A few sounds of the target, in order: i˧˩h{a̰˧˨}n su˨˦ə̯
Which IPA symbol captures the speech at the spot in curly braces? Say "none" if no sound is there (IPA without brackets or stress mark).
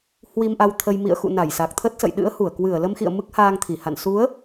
a̰˧˨